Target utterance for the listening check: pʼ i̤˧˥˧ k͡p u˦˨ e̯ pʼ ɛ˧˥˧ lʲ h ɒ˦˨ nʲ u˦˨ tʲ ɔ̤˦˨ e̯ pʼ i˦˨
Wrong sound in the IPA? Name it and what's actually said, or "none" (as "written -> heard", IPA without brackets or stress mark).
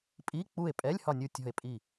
i̤˧˥˧ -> i˧˥˧